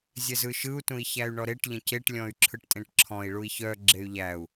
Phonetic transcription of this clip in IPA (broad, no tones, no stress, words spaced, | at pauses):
zʲɛzɯʃɯu̯ tũi̯çæy̯ɳɔɾeʈ ʎə̃ceʈ lʲɔ̃y̯ǁʰɯʈtʼẽʈǁʰɔ̃i̯ ɭui̯çœ ɡ͡ǁey̯ʎæu̯